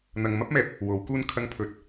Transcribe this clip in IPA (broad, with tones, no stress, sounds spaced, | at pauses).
n̪ ɐ˨ ŋ m ɐ˥ p̚ m ɛː˨ p̚ | w o˨˥ w k uː˥ n kʰ ɐ˧ ŋ pʰ ɵ˨˥ t̚